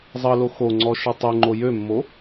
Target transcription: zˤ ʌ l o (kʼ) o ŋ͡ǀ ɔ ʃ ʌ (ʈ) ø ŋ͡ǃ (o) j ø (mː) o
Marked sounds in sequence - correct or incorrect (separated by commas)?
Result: incorrect, incorrect, correct, correct